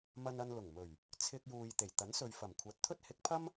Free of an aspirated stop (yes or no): no